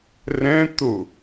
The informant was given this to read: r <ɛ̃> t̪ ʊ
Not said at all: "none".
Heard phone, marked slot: ɛ̃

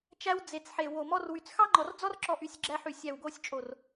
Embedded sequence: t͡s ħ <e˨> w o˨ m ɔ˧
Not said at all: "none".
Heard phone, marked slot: e˨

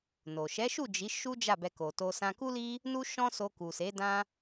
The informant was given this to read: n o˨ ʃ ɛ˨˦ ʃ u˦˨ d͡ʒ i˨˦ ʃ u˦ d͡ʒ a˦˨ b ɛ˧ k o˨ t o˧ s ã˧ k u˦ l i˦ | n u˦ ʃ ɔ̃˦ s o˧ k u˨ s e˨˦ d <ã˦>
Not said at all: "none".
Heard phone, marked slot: ã˦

